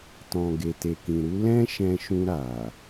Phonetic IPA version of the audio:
tɔ̃˨ ɡe˨te˨kĩ˨ɾu˧ lɛ̃˦ ʃɛ̃˧ʃũ˧ɾa˨

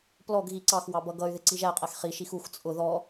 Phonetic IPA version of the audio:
plɔɡɣi ǀɑxwɑ bʌɡʌy̯ðɪ ǀiʒæqʼæx χiʃix ux t͡sʼʊ ðɔ

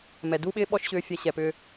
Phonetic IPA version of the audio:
mɛ˨du˦ɓɪː˦ ɓɔ˦ʃɕʏː˧fʲɛ˧ ɕɛ˨pʏː˧

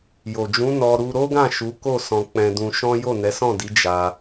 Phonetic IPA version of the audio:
jo˨ d͡ʒũ˨˦ nɔ˧ ɾu˧ɾo˦ɡã˦˨ ʃu˨˦ko˦˨ sɔ̃˧k͡pɛ̃˧ dũ˧ʃɔ̃˦ jo˦˨nɛ˨˦sɔ̃˦˨di˨˦ d͡ʒa˧

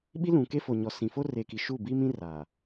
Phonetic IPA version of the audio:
ɓi˦lũ˨ke˦fo˨ ɲɔ˨sĩ˨fo˦ re˨ki˨ ʃu˦˨bi˦mĩ˦ ra˨

